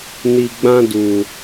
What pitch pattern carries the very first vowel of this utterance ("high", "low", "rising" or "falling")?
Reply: low